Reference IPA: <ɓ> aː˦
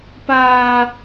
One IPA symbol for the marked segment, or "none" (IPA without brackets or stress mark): p